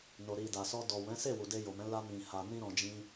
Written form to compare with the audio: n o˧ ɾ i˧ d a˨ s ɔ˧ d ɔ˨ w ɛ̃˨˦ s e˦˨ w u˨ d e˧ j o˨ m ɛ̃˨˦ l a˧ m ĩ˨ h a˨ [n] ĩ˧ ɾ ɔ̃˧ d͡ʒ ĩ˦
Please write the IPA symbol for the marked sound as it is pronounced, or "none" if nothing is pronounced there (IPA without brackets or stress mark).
n